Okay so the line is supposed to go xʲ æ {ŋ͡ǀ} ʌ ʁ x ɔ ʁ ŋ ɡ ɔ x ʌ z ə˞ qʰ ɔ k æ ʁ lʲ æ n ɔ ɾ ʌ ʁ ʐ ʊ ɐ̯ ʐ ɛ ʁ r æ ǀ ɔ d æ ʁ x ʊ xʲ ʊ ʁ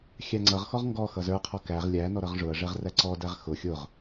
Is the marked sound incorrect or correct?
correct